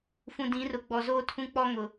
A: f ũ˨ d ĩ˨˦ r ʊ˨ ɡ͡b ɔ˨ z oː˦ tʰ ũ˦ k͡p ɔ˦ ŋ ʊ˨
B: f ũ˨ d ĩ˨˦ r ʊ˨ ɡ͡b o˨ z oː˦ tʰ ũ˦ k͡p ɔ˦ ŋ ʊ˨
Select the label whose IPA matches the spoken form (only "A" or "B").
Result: A